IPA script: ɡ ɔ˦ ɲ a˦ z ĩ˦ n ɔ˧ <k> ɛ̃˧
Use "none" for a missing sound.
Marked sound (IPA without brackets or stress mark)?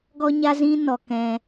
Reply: k